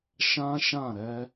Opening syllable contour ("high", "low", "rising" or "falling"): high